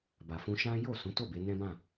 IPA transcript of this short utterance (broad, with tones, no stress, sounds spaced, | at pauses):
b a˨ f ũ˧ ʃ ã˦ j o˦˨ s ũ˨˦ t o˦˨ b e˨˦ n ɛ̃˦ b ã˦˨